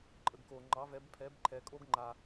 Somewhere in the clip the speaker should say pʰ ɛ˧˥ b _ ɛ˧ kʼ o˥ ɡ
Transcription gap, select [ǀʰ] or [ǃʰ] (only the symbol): ǃʰ